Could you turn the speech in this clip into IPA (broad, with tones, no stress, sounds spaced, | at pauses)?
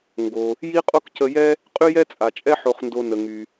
ŋ ɡ o˩ | j i˥ qʼ o˥ k c ə˧ j ɛ˥ | qʼ y˥ j ɛ˥ t͡sʼ a˩ t͡ʃʼ ɛ˥ ħ o˧ χ n d o˧ n ə˩ ŋ y˩